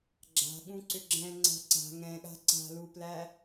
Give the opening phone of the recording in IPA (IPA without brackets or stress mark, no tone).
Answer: ɡ͡ǁ